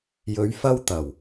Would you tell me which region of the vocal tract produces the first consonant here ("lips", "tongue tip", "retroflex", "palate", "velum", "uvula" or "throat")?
palate